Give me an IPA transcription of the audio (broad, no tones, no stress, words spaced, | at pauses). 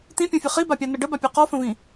t̪ĩpʲõfʲɨ χibapʲanə ɖəbapʲu qɔfə̃vĩ